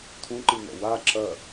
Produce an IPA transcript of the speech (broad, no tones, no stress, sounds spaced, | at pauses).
t̪ʰ ũ ǃ ɨ n̪ ɔ̰ w a ǁ ɐ